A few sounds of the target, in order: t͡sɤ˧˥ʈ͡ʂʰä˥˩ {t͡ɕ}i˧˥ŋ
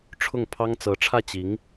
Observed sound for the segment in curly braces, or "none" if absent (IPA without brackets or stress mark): t͡ɕ